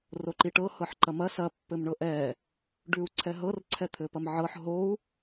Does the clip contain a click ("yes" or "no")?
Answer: yes